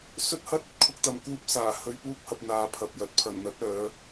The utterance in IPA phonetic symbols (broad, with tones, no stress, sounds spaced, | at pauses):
s ɵ˥ t̚ h ɐ˥ t̚ ɵ˧ t̚ kʰ ʊ˧ k̚ t̪ ɐ˨ m k uː˧ p̚ s aː˨˩ h ɵ˨˧ ɥ p uː˧ k̚ h ɐ˨ p̚ n̪ aː˧ pʰ ɐ˨ p̚ j ɐ˨ t̚ pʰ ɐ˨˩ n n̪ ɐ˨˥ t̚ œː˨˧